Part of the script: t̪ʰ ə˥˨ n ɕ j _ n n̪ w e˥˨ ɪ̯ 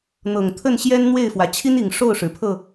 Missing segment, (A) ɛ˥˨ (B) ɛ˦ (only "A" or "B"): B